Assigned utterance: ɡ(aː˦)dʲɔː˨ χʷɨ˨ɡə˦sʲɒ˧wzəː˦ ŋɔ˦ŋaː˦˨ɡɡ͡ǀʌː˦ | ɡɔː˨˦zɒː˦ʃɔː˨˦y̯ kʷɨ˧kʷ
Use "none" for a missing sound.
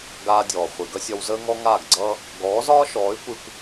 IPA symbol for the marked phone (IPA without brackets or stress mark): aː˧